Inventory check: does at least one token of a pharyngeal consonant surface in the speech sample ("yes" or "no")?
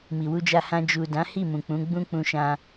no